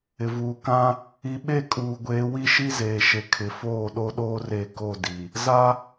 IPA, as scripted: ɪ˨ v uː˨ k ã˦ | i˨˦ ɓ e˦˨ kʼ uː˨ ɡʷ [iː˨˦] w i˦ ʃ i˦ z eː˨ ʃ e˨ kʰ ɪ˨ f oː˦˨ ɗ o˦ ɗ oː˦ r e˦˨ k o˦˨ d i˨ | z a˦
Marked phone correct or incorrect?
incorrect